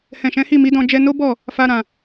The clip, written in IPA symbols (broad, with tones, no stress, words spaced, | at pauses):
hɛ̃˨ʃɛ̃˨˦hi˦˨ mi˨˦dɔ̃˧ d͡ʒɛ˧no˦ bɔ˦˨ | fa˧ɾã˨